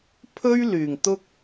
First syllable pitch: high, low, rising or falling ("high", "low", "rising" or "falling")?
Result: high